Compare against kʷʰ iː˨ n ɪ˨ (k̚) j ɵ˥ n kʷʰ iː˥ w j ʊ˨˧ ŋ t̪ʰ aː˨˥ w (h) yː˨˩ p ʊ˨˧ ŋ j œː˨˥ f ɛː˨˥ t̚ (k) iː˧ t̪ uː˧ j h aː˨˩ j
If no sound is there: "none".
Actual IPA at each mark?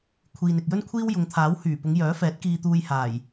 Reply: k̚, h, k

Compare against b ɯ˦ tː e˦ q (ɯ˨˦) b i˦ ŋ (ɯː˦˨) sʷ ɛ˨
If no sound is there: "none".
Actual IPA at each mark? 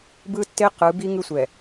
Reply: ɯ˨˦, ɯ˦˨

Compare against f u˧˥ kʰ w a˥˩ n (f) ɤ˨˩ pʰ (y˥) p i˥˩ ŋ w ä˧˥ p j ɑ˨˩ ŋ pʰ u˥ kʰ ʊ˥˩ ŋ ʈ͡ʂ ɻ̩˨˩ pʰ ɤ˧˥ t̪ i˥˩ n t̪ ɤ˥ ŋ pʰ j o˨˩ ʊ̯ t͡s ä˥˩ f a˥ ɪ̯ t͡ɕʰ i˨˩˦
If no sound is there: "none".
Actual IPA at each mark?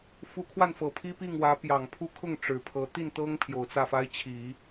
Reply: f, i˥

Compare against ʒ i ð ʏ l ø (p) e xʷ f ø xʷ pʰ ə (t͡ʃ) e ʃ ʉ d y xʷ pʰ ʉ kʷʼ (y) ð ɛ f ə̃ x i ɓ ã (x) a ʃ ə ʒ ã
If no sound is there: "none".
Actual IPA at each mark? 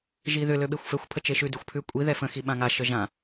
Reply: ɓ, t͡ʃ, i, ŋ

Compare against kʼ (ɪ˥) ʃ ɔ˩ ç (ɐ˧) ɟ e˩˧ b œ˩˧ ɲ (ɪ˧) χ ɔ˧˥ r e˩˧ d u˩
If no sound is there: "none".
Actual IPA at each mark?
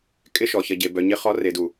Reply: ɪ˥, ɐ˧, ɪ˧˥

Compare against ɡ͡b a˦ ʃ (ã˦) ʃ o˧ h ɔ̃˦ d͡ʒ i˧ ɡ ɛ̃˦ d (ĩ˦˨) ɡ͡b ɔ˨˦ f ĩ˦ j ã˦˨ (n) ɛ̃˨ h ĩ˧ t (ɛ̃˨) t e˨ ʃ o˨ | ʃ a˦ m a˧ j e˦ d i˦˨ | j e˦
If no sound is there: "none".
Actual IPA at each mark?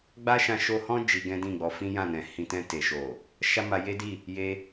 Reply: ã˧, ĩ˦˨, n, ɛ̃˧

